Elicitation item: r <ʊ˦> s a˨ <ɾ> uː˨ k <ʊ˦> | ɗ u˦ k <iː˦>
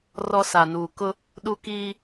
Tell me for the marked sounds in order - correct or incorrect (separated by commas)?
incorrect, incorrect, correct, correct